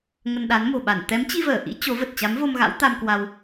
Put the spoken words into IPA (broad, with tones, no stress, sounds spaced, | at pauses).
ŋ ə˧ n ɗ a˨˦ n m o̤˨˩ ɓ a˧˩ n t̪ ɛ˨˦ m t͡ɕ i˧ v əː˧˩ ʔ ḭ˧˥ t͡ɕ o˨˦ v ə˨˩ t̚ t͡ɕ a˨˦ m v o˧ m ɣ a̰˧˥ w t̪ a˧ m k w a˧ w